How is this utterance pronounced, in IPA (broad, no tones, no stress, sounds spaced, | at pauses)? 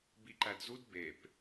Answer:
b i ǃ æ d z u d b e p